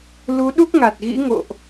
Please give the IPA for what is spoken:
lu˨˦ɗu˦˥k̚ŋa˨˩t̚ɣḭ˧˥ ŋo̰˧˨ʔ

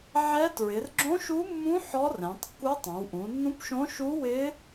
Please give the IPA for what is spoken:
ʕɛ˧˥tɹɪ˩˧r ɡ͡ǁõ˧˥ʃu˧˥mːũ˧˥ ħɔ˧˥rɛ̃˩˧tˤkːu˧˥ tˤõ˩˧wʔũ˩˧nːũ˧˥pʃõ˧˥ ʃu˧˥wɪ˧˥

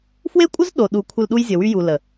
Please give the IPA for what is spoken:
fwe˦kʷʼə˦z ɗo˨ɗu˨ kʷʰə˨l ɗu˦jzʲə˨wy˦ju˨ lə˨

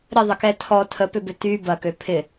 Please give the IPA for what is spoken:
ɾɪðˤəkɛ tʰɔ tʰəpʏbʏ ty bɐkø pʰɪ

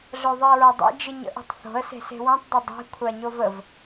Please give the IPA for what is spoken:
ɮoðˤɨə̯ɹadˤḛ d͡ʒɨɲə̰ʔe̤tˤθo̤ə̯ se̤se̤wãtˤ dˤədˤe̤ kʷʰaɲovəv

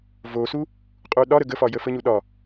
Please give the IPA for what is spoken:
vosu | qʼuɗɒɾə ɡəfɒ jəfəɲu ɗɒ

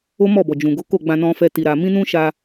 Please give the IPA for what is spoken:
o˦mɔ˦˨bɔ˨d͡ʒũ˨ ɡo˨˦ ko˦˨ɡ͡bã˧ nɔ̃˦fɛ˦ti˧ɾa˧ mĩ˦nũ˦ʃa˧

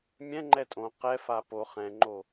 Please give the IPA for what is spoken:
mʲɛ̃ŋ͡ǃɛ tʼõ qɛfa po χɛ̃ŋ͡ǃo

